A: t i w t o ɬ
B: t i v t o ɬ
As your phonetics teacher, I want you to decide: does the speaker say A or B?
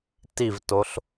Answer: B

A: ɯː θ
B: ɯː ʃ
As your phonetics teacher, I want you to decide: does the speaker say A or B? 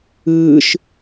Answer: B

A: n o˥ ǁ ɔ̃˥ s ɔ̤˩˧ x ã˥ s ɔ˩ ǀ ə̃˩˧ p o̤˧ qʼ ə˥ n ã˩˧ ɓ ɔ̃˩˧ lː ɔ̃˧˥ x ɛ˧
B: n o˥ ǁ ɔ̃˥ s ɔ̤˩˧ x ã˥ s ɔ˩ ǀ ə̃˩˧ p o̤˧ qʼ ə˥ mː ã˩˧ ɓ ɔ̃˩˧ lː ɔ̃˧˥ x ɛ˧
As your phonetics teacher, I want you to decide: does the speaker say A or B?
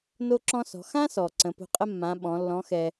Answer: B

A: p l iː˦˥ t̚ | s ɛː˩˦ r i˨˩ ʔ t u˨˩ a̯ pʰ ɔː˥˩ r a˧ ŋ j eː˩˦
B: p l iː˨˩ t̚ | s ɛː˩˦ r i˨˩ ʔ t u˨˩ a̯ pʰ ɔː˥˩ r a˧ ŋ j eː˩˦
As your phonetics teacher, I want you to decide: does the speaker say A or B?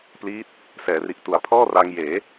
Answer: A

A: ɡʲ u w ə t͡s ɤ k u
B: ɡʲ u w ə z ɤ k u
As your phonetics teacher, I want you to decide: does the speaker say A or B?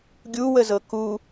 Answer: B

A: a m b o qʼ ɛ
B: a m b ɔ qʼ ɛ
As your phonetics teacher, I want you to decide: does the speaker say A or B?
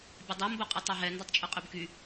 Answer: A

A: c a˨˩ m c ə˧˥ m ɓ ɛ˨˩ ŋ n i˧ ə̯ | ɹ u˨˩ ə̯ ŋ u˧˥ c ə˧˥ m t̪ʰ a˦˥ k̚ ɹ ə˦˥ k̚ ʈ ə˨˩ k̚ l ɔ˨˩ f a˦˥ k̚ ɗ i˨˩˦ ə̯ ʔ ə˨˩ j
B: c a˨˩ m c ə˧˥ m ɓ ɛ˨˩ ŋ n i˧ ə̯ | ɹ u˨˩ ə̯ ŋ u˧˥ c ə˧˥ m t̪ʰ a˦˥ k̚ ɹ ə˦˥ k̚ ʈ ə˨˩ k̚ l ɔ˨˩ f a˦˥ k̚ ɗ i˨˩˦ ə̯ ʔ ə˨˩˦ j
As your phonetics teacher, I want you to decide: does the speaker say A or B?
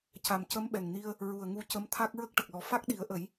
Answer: B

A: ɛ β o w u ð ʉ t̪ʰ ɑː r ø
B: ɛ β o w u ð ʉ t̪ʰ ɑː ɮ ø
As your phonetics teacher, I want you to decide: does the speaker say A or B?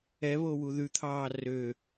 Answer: A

